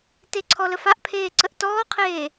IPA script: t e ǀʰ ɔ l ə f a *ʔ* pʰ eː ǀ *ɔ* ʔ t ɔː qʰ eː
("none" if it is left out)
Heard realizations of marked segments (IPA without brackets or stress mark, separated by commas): ʔ, ə